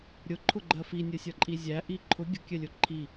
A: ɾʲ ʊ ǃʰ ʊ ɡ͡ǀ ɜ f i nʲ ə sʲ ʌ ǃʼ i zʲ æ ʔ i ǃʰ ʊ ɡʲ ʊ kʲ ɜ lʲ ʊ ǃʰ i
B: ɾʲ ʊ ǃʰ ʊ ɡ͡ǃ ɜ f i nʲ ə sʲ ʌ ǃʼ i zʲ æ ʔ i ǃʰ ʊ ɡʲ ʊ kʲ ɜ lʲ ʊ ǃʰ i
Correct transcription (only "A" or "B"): B